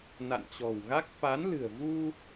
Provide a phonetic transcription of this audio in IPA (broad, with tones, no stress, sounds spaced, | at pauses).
n a̰˧˨ n t͡ɕ ɔ̤˨˩ w ɣ a˦˥ k̚ f a˨˦ n l ɨ̤˨˩ ə̯ v u˧